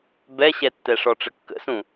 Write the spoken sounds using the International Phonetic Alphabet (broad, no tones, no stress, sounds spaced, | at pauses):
b ɛ ɕ ɛ tː ɛ ʂ ɔ ʈ͡ʂ ə kː ə̰ s ũ